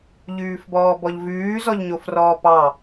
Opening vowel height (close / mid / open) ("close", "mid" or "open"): close